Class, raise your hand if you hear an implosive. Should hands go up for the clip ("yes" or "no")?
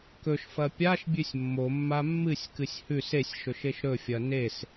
no